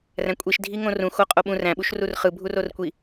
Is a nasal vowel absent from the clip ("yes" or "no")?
no